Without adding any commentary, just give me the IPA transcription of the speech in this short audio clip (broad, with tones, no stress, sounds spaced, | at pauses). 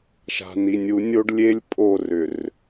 ʃ a̤˨ n i˨ nʲ u˨˦ nʲ o˦ ɖ lʲ e˦ lʲ pʼ o˦˨ r ʏ˨ r